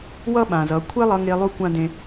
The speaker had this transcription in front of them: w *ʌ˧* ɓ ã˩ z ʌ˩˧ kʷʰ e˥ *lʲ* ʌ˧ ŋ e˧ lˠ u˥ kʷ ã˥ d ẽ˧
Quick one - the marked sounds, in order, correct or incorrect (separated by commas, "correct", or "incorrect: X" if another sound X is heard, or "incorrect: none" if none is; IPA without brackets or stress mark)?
incorrect: ʌ˥, incorrect: lˠ